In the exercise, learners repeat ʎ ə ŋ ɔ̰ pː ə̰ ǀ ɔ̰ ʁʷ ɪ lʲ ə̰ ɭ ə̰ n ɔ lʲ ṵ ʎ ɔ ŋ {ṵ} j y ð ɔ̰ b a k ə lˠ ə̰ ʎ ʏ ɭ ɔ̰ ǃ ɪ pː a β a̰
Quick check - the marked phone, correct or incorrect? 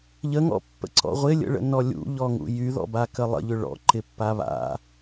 correct